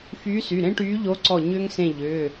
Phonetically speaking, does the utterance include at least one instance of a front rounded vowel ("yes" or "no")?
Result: yes